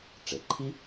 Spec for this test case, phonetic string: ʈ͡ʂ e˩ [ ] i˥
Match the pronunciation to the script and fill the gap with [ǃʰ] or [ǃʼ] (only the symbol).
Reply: ǃʰ